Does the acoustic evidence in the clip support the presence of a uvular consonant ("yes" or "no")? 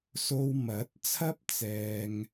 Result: no